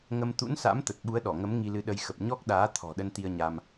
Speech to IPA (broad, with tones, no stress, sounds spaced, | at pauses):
ŋ ə˧ m t̪ ṵ˧˥ n s a̰˧˥ m t̪ ə˨˩ t̚ ɓ u˨˦ ə̯ ɗ ɔ˧˩ ŋ ə˨˦ m ŋ i˧ l ɨ˨˦ ɗ ə˧ j x ə˨˩ p̚ ɲ ɔ˦˥ k̚ ɗ aː˨˦ t̪ʰ ɔ̤˨˩ ɗ ə˧ n t̪ i˧ ə̯ ɲ a˧ m